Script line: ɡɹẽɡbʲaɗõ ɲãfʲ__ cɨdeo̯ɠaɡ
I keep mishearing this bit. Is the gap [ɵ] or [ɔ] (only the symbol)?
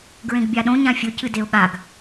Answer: ɵ